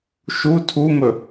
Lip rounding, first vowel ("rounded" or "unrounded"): rounded